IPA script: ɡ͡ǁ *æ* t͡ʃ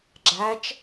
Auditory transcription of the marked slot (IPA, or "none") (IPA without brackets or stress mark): æ